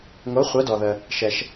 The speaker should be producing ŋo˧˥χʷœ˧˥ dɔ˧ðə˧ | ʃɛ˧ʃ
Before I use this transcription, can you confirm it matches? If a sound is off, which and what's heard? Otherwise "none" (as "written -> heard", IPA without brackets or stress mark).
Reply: none